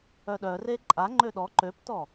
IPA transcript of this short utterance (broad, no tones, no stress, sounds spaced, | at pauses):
œ ɗ œ r e ǃʼ a ŋ͡ǃ ø ɗ ɔ ǃ ø p t ɔ